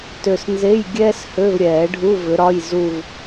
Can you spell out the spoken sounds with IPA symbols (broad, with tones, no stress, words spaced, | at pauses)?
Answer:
tø˨snze˧˥˧j ɡʲɛː˥s hø˧˥˧vɾʲɛː˨˩˦ɖʱu˧˥˧vʏ˨˦ ɾɒ˧˥˧jzu˥˧v